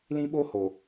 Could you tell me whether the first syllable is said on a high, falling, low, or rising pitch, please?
high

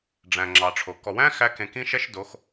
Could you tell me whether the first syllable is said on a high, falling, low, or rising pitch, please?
low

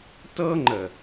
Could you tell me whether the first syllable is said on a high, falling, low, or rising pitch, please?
high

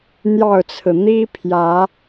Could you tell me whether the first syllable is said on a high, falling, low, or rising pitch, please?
falling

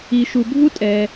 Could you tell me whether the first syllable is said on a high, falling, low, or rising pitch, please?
low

